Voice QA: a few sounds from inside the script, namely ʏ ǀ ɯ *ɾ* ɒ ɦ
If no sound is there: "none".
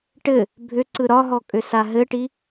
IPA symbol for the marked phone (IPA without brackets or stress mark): ɾ